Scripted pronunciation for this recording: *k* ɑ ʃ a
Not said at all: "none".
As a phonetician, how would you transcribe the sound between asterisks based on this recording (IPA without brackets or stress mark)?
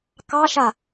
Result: k